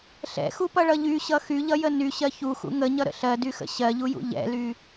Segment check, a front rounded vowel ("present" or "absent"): present